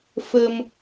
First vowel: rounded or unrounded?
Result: unrounded